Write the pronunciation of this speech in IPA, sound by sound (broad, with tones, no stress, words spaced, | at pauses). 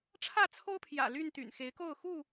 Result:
ʈ͡ʂʰä˥˨t͡sʰo˦ʊ̯pʰjä̰˨˩ ly˥˨nt̪y̰˨˩n xe˨˦ɪ̯ko˥˨ʊ̯ xu˥˨